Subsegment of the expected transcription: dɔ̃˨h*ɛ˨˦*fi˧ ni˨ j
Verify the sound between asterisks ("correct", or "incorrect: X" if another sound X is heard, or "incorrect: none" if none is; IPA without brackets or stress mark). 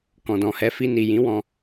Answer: correct